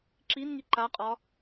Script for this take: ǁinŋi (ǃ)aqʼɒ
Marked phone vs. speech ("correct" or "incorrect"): correct